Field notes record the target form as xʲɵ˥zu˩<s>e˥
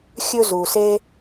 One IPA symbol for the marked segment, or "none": s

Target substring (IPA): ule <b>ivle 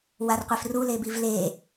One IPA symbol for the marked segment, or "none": b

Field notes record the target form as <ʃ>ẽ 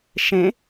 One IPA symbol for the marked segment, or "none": ʃ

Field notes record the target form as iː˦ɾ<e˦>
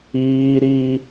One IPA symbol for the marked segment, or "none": i˦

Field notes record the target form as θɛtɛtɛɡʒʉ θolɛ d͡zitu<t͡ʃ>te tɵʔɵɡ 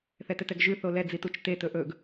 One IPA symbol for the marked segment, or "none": t͡ʃ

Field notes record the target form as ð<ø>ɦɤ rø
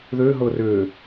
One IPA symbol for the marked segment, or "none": ø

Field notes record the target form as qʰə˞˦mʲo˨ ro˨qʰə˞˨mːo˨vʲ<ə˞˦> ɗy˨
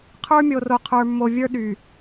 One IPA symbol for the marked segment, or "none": ə˞˦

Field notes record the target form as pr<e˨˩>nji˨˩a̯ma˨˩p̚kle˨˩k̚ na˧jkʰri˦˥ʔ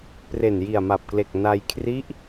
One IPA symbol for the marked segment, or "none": e˨˩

